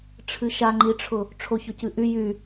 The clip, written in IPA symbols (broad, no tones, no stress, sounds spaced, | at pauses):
ʈ͡ʂʰ ɨ ʃ a ŋ͡ǃ i ʈ͡ʂʰ ʊ | ʈ͡ʂʰ o ç ʊ c ɨ ʔ y j y